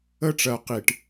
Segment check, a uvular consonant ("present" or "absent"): present